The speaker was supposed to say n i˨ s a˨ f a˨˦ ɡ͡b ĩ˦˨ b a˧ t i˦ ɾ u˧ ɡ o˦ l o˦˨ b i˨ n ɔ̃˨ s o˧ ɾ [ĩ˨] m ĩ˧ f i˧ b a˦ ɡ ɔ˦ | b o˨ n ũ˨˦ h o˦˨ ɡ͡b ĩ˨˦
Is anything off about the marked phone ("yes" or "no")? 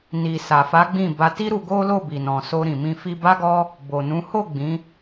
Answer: no